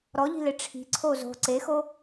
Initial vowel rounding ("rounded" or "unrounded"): rounded